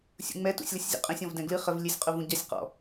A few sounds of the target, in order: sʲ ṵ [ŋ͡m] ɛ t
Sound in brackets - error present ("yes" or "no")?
no